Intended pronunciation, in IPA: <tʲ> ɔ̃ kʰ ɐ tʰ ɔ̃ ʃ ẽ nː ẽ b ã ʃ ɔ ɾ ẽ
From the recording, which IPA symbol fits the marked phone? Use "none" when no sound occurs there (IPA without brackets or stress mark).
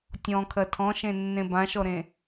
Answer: tʲ